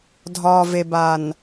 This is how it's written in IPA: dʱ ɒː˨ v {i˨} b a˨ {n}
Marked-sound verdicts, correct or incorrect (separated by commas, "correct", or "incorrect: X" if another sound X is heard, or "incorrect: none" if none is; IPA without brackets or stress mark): incorrect: e˨, correct